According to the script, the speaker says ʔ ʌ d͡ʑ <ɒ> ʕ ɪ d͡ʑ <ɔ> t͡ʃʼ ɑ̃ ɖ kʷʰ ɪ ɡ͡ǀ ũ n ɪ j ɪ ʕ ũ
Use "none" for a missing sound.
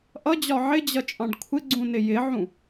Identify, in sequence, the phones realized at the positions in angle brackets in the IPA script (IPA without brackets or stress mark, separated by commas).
ɒ, ʌ